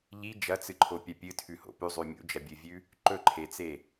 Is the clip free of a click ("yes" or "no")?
no